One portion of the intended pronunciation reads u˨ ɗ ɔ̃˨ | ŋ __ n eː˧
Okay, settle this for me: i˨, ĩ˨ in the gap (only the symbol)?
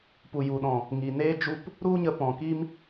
i˨